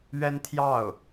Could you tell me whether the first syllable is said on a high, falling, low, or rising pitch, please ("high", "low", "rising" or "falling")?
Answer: high